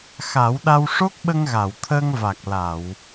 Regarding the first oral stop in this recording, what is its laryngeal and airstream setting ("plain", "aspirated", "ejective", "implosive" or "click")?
implosive